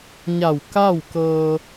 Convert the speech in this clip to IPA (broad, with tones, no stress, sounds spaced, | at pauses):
ɲ a˧˩ w k a˥˨ w k ɤː˧